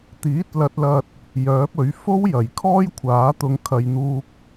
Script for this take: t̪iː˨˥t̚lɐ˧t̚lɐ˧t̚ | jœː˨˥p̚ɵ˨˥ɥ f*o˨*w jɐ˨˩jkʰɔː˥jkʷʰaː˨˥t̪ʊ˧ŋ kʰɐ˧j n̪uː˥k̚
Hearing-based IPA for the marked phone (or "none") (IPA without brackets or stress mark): o˥